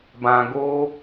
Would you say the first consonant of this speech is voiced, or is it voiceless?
voiced